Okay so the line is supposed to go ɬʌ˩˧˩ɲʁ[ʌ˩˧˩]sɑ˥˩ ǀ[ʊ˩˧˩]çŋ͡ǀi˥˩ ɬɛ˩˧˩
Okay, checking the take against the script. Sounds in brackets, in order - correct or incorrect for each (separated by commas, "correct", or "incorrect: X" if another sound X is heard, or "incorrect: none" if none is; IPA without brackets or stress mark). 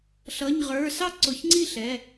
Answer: incorrect: ə˞˩˧˩, correct